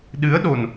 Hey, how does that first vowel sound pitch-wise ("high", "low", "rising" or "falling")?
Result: rising